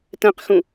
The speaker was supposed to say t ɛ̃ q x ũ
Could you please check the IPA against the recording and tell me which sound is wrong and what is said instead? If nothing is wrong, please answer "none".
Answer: none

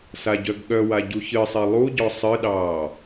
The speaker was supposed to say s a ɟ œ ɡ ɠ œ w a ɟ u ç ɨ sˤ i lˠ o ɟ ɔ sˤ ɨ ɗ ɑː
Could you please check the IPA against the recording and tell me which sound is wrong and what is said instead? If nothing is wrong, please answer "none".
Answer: o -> u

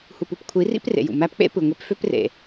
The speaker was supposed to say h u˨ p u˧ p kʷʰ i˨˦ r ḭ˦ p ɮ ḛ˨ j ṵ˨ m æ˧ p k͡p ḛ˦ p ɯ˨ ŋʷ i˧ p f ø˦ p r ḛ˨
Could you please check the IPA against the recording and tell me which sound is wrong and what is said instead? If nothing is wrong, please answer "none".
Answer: ɮ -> r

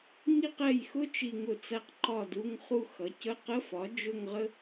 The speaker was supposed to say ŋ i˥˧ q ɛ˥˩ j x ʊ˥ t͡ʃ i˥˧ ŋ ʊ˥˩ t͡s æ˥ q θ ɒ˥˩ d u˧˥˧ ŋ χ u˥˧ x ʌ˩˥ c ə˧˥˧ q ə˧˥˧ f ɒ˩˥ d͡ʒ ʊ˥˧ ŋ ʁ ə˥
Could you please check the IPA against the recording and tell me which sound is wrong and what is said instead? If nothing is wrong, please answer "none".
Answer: θ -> ǃ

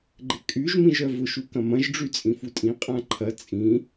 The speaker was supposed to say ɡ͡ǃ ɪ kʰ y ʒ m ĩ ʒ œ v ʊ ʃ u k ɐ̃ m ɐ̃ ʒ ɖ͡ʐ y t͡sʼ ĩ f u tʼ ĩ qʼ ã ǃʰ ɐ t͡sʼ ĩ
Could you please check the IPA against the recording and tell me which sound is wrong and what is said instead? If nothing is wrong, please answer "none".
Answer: kʰ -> kʼ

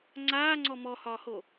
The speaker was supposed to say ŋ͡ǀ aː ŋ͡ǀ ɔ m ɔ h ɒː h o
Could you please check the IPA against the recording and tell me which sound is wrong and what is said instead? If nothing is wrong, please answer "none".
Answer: none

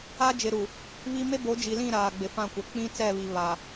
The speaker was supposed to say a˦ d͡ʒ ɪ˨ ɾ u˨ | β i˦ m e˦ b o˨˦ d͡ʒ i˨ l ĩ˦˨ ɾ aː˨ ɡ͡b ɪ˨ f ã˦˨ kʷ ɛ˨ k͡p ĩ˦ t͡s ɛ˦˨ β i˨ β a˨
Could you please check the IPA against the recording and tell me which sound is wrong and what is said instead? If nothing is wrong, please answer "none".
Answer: none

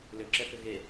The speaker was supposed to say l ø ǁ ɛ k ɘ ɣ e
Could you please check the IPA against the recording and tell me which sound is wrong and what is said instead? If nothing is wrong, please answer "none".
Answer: none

